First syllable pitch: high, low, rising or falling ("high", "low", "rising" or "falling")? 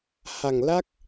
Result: low